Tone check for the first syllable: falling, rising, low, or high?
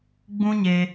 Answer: high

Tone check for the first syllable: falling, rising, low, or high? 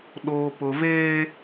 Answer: low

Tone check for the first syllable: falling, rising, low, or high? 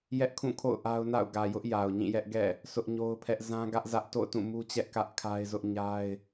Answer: high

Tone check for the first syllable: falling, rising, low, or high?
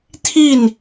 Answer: falling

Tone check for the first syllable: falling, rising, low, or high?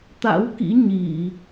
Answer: rising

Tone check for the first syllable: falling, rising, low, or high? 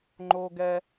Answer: high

